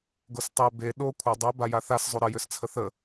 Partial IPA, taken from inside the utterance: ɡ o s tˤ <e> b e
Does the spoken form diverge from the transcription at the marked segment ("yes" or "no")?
yes